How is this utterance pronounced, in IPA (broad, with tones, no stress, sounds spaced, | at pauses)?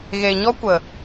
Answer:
ɣ e˨ ɲ ɔ˦ kʷ ə˨